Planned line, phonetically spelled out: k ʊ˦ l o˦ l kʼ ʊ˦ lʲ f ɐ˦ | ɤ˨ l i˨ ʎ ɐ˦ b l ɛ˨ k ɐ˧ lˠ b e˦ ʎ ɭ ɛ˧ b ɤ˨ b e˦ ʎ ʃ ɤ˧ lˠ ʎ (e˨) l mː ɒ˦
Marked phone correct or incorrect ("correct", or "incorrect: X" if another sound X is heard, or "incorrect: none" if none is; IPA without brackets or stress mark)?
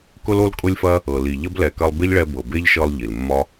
incorrect: i˨